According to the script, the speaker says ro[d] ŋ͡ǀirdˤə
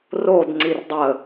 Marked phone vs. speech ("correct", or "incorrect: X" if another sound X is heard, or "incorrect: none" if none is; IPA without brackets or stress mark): correct